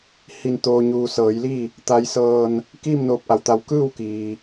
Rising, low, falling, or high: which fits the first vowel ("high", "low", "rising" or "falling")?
low